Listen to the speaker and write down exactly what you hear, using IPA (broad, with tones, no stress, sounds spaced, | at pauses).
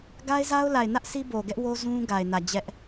ɡ a˦ ɪ̯ z a˦ ʊ̯ l a˨ ɪ̯ n ä˦ ʔ s i˦ b o˨ ɡ ɛ˦ ʔ w o˦ z ũ˦ ɡ a˨ ɪ̯ n ä˨ d͡ʑ ɛ˦ ʔ